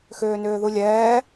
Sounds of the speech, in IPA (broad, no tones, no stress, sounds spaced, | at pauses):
x ʏː n ʏː ð u lʲ ɛː